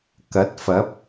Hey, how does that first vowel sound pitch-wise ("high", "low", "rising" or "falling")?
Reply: rising